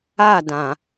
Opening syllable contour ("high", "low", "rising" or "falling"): falling